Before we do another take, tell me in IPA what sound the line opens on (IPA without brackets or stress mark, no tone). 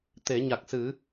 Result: t̪